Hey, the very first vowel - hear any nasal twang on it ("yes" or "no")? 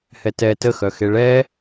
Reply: no